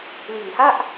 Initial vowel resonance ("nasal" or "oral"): oral